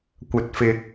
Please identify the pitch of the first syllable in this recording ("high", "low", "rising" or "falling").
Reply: low